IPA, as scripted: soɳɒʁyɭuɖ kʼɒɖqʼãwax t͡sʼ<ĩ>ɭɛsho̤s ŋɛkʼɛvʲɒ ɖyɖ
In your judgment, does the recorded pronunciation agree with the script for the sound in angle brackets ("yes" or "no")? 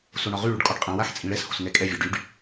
yes